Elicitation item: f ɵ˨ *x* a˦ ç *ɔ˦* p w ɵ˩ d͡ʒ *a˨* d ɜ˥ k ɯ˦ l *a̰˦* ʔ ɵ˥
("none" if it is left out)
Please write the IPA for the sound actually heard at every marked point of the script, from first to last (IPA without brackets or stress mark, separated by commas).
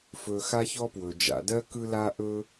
x, ɔ˦, a̰˨, a˦